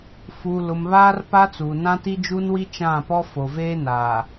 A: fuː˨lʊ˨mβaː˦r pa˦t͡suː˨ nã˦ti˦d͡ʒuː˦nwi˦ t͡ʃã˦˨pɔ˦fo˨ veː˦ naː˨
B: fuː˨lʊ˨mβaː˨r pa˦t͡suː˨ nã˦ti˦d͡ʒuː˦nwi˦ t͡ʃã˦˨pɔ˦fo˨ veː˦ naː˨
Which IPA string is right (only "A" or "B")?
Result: A